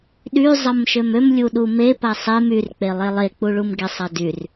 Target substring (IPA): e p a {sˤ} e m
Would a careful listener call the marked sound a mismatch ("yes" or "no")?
no